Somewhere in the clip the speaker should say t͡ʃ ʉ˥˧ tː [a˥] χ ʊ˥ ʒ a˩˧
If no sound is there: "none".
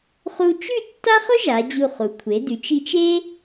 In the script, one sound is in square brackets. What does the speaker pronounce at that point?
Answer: a˥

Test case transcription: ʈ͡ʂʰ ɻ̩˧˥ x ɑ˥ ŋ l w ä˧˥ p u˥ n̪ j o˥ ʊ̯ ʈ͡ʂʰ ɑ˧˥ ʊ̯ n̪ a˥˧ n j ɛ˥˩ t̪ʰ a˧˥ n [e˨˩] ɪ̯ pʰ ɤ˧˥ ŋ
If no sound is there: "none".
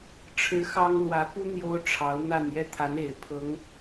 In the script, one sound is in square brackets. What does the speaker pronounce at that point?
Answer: e˨˩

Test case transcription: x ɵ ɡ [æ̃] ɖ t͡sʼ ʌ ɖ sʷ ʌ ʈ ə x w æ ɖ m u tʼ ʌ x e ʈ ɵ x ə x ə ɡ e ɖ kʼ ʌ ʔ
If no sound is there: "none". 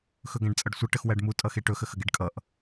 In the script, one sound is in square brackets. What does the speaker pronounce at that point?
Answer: æ̃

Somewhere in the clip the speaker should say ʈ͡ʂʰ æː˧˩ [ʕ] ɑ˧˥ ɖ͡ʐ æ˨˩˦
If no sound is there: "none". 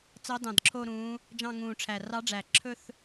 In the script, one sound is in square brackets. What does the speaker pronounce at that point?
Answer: r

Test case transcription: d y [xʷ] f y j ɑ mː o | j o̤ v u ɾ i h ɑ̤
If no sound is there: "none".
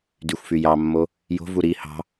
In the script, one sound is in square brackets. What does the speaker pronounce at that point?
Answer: xʷ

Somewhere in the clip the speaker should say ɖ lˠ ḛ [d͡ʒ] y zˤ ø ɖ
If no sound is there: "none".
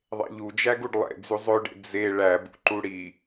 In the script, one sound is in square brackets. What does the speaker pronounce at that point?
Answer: d͡z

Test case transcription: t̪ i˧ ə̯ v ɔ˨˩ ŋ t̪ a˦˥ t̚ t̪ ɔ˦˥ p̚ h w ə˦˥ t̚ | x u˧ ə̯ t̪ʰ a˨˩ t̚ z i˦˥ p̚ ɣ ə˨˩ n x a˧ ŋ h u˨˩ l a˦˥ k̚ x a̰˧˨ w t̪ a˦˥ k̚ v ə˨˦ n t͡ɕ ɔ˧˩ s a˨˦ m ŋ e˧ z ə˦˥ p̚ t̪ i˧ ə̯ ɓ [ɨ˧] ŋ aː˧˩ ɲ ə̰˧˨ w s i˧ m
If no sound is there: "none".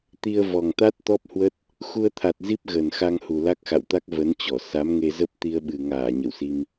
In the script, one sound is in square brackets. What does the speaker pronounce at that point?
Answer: ɨ˨˩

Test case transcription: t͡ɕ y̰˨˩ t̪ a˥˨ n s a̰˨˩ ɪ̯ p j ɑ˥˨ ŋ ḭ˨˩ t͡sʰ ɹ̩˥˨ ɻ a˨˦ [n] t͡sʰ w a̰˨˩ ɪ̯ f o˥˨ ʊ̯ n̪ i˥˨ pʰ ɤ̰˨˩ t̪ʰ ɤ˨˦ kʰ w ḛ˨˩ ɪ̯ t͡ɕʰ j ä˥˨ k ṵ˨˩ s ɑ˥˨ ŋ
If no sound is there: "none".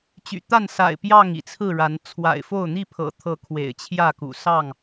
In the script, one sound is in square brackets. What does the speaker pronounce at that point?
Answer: n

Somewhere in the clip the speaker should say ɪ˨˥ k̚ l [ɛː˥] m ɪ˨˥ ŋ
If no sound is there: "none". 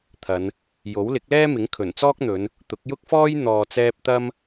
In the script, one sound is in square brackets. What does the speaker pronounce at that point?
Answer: ɛː˥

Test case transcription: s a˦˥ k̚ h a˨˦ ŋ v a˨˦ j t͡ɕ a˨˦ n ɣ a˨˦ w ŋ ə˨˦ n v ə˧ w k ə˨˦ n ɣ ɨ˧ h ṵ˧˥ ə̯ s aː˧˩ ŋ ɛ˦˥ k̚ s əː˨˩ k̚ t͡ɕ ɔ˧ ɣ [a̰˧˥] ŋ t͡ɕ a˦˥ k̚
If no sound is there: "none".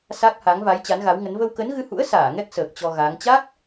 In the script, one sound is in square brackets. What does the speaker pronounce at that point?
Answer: a˨˦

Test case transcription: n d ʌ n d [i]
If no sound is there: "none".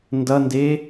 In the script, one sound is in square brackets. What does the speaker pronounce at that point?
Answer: e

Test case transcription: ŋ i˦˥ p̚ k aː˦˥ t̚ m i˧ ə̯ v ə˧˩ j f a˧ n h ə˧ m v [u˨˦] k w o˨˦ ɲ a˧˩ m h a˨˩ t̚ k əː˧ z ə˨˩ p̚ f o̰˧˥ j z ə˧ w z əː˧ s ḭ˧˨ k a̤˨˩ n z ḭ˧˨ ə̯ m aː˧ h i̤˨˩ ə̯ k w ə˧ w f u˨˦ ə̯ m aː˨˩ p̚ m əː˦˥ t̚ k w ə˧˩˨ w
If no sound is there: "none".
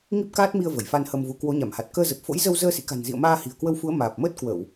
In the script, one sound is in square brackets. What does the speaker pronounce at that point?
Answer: u˨˦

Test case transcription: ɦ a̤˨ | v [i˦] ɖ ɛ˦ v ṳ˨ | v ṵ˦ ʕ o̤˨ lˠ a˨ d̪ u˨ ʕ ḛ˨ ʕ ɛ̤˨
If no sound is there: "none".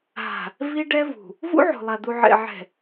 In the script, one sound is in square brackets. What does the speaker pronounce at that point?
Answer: i˦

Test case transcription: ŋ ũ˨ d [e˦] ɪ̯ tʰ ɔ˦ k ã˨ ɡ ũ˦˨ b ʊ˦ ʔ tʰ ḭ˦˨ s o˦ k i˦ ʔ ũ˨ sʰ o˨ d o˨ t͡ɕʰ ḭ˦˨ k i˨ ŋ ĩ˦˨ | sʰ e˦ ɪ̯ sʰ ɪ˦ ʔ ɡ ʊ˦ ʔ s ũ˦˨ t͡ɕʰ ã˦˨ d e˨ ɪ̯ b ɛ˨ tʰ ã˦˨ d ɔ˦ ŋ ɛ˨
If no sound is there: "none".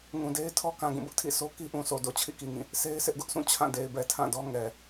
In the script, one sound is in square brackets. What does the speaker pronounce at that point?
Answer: e˦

